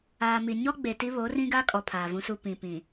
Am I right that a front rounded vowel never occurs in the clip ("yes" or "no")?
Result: yes